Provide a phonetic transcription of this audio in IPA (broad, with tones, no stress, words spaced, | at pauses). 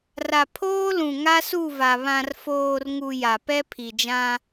ra˨ pʰoː˦lũ˨ ŋa˦su˦˨va˨ βã˨rfoː˨rŋu˨ ja˨pɛ˦pʰi˨d͡ʒã˦